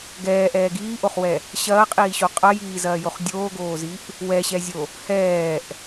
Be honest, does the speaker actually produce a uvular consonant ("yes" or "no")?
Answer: yes